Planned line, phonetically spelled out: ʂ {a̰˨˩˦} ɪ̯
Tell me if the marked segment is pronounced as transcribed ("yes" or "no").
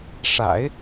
yes